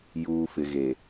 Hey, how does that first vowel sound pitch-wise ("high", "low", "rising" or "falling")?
low